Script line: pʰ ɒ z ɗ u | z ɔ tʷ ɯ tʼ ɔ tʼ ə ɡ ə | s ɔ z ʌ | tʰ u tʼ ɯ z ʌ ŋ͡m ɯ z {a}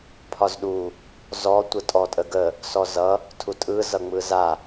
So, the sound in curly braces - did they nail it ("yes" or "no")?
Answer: yes